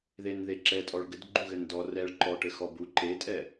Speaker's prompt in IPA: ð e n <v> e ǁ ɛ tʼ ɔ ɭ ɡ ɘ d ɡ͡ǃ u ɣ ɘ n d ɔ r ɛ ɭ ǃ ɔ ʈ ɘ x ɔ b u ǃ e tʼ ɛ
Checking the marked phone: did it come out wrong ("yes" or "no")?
yes